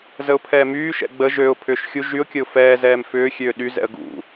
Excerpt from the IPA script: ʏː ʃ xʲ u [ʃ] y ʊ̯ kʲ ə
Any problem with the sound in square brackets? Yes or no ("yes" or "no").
yes